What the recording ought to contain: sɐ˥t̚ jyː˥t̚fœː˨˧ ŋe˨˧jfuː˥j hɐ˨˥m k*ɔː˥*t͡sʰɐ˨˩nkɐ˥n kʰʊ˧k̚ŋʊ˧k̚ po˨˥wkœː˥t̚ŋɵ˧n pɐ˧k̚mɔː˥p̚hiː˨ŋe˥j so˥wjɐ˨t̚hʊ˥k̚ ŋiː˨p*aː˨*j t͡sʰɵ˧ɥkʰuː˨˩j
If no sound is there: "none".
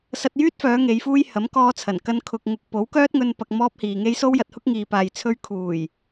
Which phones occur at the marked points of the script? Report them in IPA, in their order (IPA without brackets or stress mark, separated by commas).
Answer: ɔː˥, aː˨